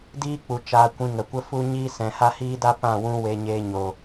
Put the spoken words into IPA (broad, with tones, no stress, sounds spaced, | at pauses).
d iː˦ k͡p u˨ t͡ʃ aː˧ kʷ ĩ˧ ŋ ə˨ kʷ ə˦ f u˦ ɲ i˦ s ɛ̃˨ h a˦ h iː˦ d a˦ p ã˦˨ w ũ˧ w e˧ ɲ eː˧ ɲ o˨